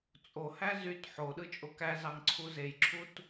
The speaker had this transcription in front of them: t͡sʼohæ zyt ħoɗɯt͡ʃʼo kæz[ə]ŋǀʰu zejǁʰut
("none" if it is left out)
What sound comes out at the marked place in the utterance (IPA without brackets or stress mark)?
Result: ɑ